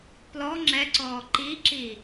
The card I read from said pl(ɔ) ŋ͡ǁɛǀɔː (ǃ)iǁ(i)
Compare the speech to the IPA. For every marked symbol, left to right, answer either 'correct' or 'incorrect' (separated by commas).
correct, correct, correct